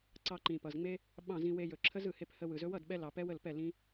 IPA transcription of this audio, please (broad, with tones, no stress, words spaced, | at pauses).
ǀɑ˧ǃĩ˨pʌ˨zŋ͡me˦ | ɓɑ̃˦˨zĩ˧ we˧jɵ˨ ǁʰə˦zɯ˨he˧p hə˧ wɯ˨zɵ˦ wʌ˦˨dɓɛ˧lɑ˨ pɛ˦wə˦˨lpɛ˦˨ lĩ˦